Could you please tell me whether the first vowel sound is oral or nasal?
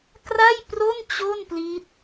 oral